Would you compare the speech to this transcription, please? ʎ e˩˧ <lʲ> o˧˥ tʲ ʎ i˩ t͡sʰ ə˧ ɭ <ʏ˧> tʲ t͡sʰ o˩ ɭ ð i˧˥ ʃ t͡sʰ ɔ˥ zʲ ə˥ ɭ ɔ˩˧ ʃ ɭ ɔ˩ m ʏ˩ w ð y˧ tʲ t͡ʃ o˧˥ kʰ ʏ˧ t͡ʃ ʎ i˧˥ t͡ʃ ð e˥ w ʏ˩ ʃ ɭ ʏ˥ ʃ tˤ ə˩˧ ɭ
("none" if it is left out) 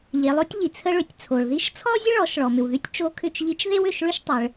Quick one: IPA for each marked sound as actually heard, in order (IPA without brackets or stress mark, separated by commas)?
lˠ, ʏ˩